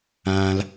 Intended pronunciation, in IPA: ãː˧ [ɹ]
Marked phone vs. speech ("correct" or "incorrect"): incorrect